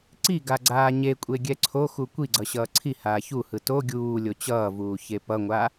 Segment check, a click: present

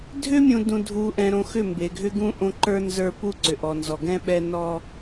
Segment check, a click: present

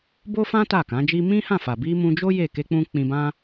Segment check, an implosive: absent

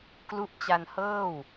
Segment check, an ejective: absent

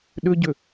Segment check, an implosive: present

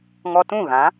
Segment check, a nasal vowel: present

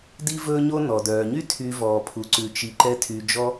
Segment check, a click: present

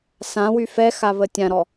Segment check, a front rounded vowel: present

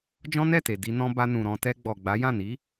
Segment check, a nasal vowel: present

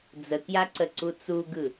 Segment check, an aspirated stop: absent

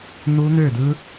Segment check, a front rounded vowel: present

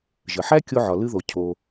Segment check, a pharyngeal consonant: present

